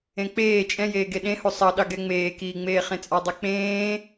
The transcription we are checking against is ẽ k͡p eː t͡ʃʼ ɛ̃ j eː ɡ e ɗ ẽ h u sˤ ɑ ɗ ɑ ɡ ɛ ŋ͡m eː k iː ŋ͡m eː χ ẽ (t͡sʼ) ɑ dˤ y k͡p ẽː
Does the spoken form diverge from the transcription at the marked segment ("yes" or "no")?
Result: no